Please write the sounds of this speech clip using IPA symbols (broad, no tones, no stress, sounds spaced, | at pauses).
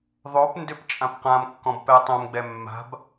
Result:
ðˤ o p n d ʏ p t͡ʃʼ ã p q ã m kː ɔ̃ b p ɛ tˤ õ m ɡ͡b ɛ mː a̤ b